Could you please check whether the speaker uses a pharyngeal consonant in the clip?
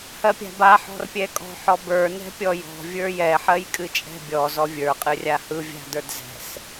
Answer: yes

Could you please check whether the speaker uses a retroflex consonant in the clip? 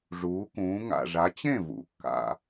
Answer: yes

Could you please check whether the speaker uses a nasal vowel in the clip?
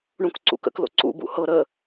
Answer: yes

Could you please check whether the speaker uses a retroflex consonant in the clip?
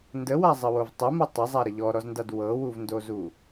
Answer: no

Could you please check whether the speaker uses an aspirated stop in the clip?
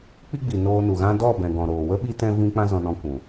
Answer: no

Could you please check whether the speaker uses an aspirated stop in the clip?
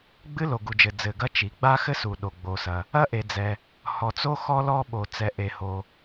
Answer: no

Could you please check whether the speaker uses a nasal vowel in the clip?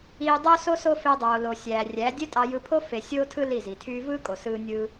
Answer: no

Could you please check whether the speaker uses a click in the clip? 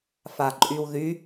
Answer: yes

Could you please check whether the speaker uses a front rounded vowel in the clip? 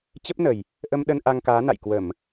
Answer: no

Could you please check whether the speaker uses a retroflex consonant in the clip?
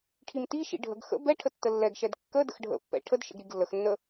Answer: yes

